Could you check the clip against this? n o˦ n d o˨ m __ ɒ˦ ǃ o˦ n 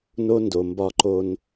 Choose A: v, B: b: B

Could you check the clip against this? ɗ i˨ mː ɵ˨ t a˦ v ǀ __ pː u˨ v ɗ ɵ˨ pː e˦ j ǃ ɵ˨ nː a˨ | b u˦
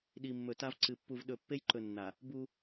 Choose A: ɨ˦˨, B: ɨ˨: B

